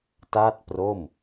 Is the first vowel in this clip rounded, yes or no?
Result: no